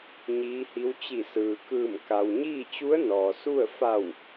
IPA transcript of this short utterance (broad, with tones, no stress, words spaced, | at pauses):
ɲiː˧˥hi˧˥w t͡ɕi˧˩sɯː˩kɯː˧˩m ka˩wɲiː˥˨t͡ɕu˧˥ə̯ nɔː˩su˥˨ə̯ fa˧˩w